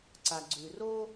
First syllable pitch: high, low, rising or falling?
low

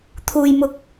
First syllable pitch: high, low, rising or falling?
low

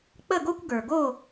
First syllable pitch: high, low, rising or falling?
falling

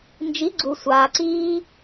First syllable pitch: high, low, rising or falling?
rising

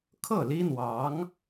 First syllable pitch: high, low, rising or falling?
falling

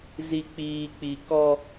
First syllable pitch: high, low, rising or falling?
low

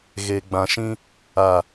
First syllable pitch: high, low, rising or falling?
low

